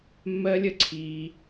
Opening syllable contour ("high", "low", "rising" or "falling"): high